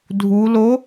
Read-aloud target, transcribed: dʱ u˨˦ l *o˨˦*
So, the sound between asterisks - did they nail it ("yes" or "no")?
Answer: yes